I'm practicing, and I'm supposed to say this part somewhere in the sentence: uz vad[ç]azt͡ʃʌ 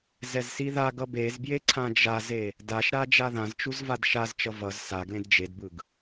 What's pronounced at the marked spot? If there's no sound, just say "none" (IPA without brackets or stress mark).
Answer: ʃ